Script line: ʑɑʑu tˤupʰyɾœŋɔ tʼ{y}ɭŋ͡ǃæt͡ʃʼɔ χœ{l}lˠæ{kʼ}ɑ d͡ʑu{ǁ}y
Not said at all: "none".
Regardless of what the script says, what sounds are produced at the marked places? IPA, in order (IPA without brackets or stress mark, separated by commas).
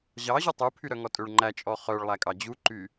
ø, ɭ, kʼ, ǃ